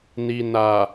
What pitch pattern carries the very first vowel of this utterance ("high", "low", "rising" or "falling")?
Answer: low